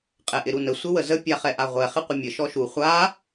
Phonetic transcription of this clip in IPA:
qʼɛʔɪɾunə sʷɪwəzə pʲaχɛʔaʁʷɛ χɪqʷəmʲə ʃɔʃu χʷa

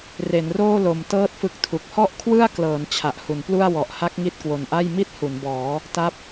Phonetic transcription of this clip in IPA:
re˩˦nroː˥˩lo˨˩m tɤː˥˩t̚fɯ˦˥k̚tʰu˨˩k̚ hɔ˥˩ʔkʰwɯ˥˩a̯klɤː˩˦n t͡ɕʰa˨˩ʔhu˩˦nplu˥˩a̯ wɔ˨˩ʔha˦˥k̚ ŋi˥˩t̚kwo˨˩nʔa˥˩j mi˥˩t̚hu˩˦nbɔː˩˦ | ta˦˥p̚

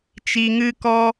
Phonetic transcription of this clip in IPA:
t͡ʃi˧ŋɨ˦kɔ˦

